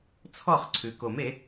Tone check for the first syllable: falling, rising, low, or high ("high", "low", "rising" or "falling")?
falling